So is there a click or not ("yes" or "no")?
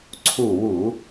yes